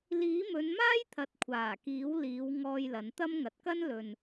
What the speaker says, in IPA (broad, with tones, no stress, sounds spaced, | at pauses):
l iː˨˥ m ɵ˨˧ n m aː˥ j t̪ʰ ɐ˨ t̚ kʷʰ aː˨˩ k iː˨˥ w l iː˨˧ w ŋ ɔː˧ j l ɐ˨˧ n t̪ ɐ˥ m ŋ ɐ˨ t̚ k ɐ˥ n l ɵ˨ n